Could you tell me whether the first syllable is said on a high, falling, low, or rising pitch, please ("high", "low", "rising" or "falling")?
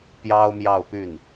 high